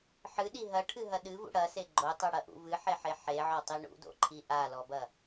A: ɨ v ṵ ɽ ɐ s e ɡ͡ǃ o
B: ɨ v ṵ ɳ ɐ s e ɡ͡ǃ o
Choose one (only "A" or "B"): A